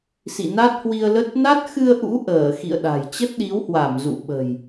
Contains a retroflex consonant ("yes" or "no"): no